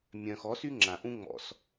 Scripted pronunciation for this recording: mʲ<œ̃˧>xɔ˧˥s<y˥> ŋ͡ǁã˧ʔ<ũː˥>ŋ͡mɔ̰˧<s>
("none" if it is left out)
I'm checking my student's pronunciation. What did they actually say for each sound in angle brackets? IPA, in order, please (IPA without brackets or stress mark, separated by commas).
œ̃˧, y˥, ũ˥, s